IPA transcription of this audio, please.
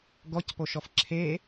ɡ ɔ c p o ʃ ɔ f ǁʰ e

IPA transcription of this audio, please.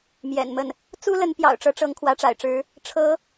m j ɛ̰˨˩ n m ə˥˩ n | t͡s u˥ l ə˧˥ n p j ɑ̰˨˩ ʊ̯ ʈ͡ʂ ɤ˧˥ ʈ͡ʂ ɤ˧˥ ŋ kʰ w ä˧˥ ʈ͡ʂ a̰˨˩ ɪ̯ ʈ͡ʂ ɻ̩˧˥ | ʈ͡ʂʰ ɤ˧˥

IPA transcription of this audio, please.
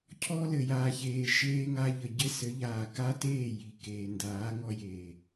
cʰ ɔ˧ l ɘ˨ j aː˨ ç eː˨ ʃ eː˧ ŋ a˧ ʎ ə˨ ɟ ɘ˦ s ɘ˨˦ ʎ aː˨ k a˦ t eː˦˨ j i˨ k eː˨ n d aː˨˦ ŋ ɔ˧ j eː˨

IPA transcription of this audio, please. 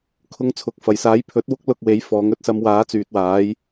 kʰ ʊ˧ ŋ t͡sʰ ʊ˨˥ k̚ f ɐ˨˩ j s aː˨˥ j pʰ ɵ˨˥ t̚ w ʊ˥ k̚ l ʊ˧ k̚ w e˨˥ j f ɔː˨˥ ŋ ɵ˧ t̚ s ɐ˧ m w aː˨˥ t͡s yː˨ t̚ w aː˨˥ j

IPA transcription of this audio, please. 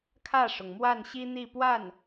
kʰ ä˥˩ ʂ ʊ˩ ŋ m w a˥˩ n ɕ i˥ n̪ i˥˧ p w a˥˩ n

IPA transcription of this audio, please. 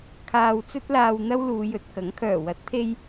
kʰ aː˧ w t͡s ɵ˥ t̚ l aː˧ w n̪ ɐ˥ w l uː˨˧ j ɵ˨ t̚ k ɐ˨˥ ŋ kʰ œː˨˩ w ɐ˨˥ t̚ t̪ʰ e˧ j

